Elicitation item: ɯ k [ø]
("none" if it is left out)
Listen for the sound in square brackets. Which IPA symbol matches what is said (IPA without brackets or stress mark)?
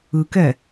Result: ɛ